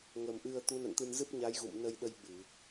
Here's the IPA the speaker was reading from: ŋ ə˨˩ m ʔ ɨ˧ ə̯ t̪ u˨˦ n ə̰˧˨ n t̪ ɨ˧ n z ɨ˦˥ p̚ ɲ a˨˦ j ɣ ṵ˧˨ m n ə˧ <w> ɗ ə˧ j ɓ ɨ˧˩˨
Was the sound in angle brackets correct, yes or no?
no